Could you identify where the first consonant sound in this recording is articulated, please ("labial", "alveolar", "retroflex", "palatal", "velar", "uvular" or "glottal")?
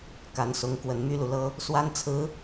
velar